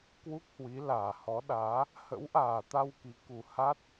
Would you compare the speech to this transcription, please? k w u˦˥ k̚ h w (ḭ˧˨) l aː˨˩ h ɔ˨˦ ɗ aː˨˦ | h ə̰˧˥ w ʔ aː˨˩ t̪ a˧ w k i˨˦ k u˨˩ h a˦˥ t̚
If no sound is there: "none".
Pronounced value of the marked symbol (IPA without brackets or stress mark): i˨˦